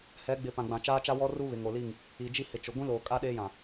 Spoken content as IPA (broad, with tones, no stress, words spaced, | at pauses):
hɛ˨˦ ɡ͡bɪ˨˦pã˨ɡ͡bã˨ t͡ʃaː˦t͡ʃa˦wɔ˦ru˦ βɪ˨ŋo˨li˦˨ŋ | i˨ d͡ʒi˦hɪ˨t͡ʃʊ˨ ɡʷĩ˦loː˨kʼa˦ ɗeː˦jã˨